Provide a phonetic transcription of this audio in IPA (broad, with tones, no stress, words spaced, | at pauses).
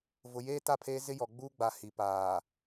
vʊ˨ jeː˦ta˦˨pʰeː˦zɪ˦ jɔ˨ɡ͡buː˦ɡ͡ba˨ hi˨ paː˨